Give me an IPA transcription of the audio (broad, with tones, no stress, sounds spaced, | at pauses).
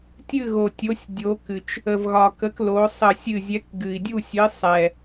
tʲ ɨ˥˨ ɣ o˨˩ tʲ o˨˥ sʲ dʲ o˨˥ k ɨ˨˩ t͡ʃ | ə˨˩ v ɣ ɒ˨˩ k ə˨˥ k l o˨˥ sˤ ə˥˨ sʲ ɨ˥˨ zʲ ɛ˨˥ k ɡ ɨ˨˩ i̯ dʲ u˥˨ sʲ ɨ˨˥ sˤ ɛ˨˩